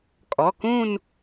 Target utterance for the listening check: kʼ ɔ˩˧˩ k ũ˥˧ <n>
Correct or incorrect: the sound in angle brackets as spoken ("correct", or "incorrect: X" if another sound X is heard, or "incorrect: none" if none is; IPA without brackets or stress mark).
correct